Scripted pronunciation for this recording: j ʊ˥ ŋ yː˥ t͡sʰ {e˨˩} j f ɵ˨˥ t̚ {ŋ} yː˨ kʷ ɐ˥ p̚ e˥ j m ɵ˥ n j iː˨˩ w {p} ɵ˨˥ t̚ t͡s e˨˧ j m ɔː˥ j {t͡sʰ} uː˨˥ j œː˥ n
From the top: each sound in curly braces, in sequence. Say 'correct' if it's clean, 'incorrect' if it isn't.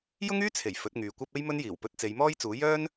correct, correct, correct, incorrect: t͡s

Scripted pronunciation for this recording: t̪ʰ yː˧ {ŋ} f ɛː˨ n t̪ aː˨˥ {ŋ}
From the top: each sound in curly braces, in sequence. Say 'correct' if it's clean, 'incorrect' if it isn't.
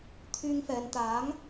correct, correct

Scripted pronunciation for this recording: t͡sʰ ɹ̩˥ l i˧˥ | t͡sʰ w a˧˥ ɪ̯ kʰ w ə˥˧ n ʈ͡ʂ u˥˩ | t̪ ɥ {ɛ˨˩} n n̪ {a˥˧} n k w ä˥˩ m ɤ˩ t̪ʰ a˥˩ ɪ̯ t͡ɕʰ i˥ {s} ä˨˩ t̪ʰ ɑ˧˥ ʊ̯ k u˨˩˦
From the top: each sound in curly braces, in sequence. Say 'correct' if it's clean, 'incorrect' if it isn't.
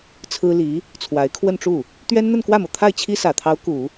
incorrect: ɛ˥, incorrect: ə˥˧, correct

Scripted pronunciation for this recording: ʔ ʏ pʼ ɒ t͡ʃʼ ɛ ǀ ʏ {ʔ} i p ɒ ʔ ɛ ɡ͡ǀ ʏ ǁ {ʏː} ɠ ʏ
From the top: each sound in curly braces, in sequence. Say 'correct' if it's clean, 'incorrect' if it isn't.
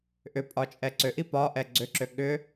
correct, incorrect: ʏ

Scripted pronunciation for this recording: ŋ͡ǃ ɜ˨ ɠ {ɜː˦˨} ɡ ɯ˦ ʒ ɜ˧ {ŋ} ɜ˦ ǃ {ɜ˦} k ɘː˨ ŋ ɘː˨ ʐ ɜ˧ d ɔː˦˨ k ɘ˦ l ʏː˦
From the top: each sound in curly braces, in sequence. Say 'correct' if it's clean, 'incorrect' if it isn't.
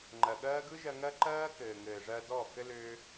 incorrect: ɜː˦, correct, incorrect: ɜː˦

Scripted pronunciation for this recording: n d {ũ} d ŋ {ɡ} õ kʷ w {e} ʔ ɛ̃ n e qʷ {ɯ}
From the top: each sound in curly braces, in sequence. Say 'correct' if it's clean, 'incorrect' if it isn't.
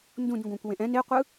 correct, correct, incorrect: ẽ, correct

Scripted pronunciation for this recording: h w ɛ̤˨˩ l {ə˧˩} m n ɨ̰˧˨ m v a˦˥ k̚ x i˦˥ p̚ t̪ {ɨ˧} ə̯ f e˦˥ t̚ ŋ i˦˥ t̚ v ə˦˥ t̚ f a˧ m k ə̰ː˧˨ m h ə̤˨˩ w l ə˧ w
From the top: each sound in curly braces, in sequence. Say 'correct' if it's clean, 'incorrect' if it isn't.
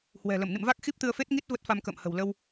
correct, correct

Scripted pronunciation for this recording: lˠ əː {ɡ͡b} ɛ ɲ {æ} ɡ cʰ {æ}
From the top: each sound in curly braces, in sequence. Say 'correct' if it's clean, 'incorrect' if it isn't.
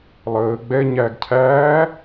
correct, correct, incorrect: æː

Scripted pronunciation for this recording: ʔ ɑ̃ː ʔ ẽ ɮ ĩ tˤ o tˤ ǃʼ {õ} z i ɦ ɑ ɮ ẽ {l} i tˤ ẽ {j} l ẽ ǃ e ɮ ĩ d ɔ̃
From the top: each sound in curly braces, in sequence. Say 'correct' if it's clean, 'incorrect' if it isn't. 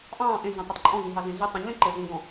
incorrect: ɔ̃, incorrect: ɮ, incorrect: ɲ

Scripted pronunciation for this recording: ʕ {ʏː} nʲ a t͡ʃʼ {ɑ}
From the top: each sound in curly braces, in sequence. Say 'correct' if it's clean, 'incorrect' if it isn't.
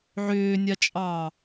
correct, correct

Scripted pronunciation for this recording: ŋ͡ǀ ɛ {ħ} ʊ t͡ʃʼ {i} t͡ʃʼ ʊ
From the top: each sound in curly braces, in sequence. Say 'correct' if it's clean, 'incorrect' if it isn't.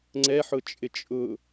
correct, incorrect: ɪ

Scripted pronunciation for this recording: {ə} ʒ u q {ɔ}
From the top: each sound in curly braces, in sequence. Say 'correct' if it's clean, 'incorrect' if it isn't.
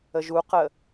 correct, incorrect: ə

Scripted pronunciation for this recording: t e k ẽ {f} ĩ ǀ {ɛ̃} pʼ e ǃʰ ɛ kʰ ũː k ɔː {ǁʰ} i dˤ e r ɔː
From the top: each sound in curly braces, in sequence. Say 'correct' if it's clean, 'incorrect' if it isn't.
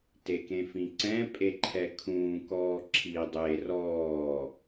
correct, correct, correct

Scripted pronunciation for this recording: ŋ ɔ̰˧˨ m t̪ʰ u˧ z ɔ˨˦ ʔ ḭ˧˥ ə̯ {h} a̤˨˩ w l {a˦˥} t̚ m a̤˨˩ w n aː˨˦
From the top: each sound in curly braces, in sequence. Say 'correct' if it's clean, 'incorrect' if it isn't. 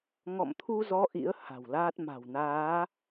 correct, incorrect: aː˦˥

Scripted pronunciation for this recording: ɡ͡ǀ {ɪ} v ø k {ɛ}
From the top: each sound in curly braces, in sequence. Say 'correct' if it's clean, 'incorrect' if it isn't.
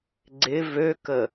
correct, incorrect: ə

